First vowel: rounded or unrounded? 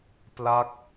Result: unrounded